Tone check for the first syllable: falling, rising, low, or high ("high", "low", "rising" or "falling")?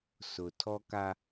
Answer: low